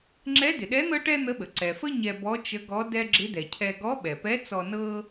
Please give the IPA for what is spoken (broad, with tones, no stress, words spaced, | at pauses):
ŋ͡ǁɛ˧˥dɪ˩ɗɛ˧˥ n̪ɤ˥ʈɛ˥n̪ə˧˥ɓə˩ ǀɛ˩fə˥ ɲɛ˧bɔ˧˥t͡ʃə˧˥ɡɔ˧˥ dɛ˥ ɡ͡ǁɪ˧˥dɛ˩cʰɛ˧ ɡɔ˧˥ɓɛ˩pɛ˧˥ t͡sɔ˧ nɤ˥